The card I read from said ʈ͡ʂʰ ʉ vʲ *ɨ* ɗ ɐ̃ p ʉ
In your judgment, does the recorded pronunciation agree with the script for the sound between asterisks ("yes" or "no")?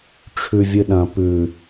yes